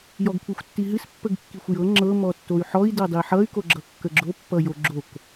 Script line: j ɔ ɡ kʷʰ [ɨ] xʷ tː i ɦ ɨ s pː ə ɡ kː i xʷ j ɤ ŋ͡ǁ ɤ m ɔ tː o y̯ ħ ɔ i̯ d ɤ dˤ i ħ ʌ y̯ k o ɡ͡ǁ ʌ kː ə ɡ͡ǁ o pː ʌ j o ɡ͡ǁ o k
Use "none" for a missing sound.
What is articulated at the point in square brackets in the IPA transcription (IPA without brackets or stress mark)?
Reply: i